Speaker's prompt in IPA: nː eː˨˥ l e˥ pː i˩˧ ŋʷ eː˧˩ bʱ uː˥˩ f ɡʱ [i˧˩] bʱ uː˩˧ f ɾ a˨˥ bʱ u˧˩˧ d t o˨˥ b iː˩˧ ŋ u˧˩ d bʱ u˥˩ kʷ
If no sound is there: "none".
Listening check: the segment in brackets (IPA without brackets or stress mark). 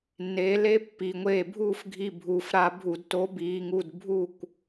i˧˩